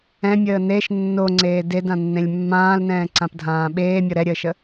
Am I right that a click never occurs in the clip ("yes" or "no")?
no